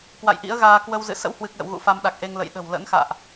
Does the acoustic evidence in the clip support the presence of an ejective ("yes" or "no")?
no